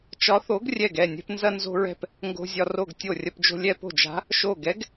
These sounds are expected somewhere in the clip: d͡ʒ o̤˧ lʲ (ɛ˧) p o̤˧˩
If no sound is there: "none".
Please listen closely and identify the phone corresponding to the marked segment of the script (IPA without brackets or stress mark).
ɛ˧